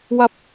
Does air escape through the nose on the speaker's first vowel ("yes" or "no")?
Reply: no